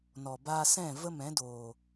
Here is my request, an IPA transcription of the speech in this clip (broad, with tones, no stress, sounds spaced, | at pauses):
n ɔ˨ b aː˧ s ɛ̃˦˨ v ə˦ m ɛ̃˨˦ d oː˨